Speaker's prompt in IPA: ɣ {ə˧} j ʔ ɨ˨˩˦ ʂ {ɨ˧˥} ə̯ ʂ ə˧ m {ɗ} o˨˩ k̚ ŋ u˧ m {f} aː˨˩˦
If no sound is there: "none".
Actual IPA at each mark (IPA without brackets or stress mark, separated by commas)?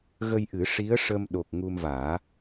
ə˧, i˧˥, ɗ, v